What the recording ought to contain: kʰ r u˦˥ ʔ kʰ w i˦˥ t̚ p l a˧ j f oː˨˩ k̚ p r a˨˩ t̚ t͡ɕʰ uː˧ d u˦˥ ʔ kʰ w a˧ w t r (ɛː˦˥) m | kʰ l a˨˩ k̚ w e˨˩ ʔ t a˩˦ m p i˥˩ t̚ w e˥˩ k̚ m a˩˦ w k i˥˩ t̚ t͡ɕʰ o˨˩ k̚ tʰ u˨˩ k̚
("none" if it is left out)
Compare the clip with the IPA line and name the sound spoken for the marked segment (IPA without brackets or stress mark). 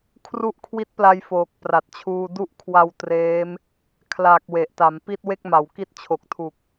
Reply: eː˦˥